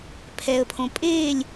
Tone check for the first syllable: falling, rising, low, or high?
low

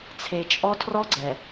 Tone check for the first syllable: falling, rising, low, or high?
low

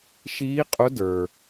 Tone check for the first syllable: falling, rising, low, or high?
rising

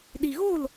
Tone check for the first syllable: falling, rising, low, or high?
low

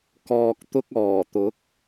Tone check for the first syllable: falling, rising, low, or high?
low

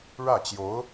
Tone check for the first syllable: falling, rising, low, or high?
falling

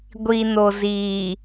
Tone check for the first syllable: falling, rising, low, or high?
low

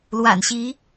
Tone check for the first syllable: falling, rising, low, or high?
low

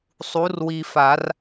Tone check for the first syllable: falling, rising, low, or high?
rising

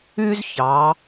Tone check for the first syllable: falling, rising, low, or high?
high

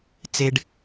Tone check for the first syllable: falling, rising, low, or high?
low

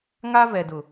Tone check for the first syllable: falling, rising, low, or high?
high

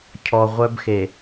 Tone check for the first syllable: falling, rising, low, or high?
low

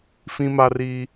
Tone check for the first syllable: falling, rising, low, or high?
high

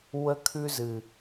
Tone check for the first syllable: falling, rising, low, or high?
high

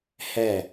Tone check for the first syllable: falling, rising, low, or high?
falling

